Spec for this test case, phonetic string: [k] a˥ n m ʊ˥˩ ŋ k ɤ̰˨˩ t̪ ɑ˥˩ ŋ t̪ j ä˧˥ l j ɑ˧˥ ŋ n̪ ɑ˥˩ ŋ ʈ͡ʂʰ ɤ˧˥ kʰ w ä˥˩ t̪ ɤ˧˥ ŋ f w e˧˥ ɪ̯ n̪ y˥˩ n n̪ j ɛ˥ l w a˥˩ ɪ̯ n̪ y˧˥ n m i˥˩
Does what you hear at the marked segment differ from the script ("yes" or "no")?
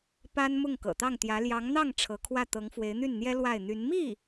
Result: yes